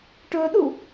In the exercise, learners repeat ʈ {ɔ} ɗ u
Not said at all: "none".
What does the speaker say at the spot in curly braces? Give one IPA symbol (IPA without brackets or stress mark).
ɵ